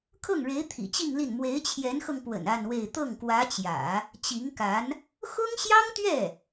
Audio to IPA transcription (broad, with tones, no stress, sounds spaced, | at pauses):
kʰ ɤ˥˩ ŋ ɻ e˧˥ ɪ̯ t̪ʰ ḭ˨˩ t͡ɕ i˥˧ ŋ l i˥˩ n m w e˧˥ ɪ̯ t͡ɕʰ j ɛ˧˥ n x ɤ˧ ŋ p w ə̰˨˩ n a˥˧ n w e˥˧ ɪ̯ t̪ ɤ˥˩ ŋ k w ä˧˥ t͡ɕ j ä̰˨˩˦ | t͡ɕ i˧˥ ŋ k a˧˥ n | x ʊ˥ ŋ ɕ j ɑ˥ ŋ t̪ ɥ ɛ˥˩